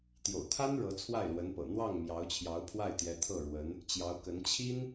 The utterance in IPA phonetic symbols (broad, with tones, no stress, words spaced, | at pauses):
t̪jo̰˨˩ʊ̯t̪ʰa˥n ɻɤ˧˥t͡sʰwa˥˩ɪ̯lwə˧˥npɤ̰˨˩ n̪wɑ˥˩ŋ mjɑ˧˥ʊ̯t͡ɕʰjɑ˧˥ʊ̯pʰwa˥˩ɪ̯t̪jɛ˧˥ t̪ʰɤ˥˩ɻwə˧˥n | t͡ɕjɑ˧˥ʊ̯kə˧˥n t͡ɕʰi˥n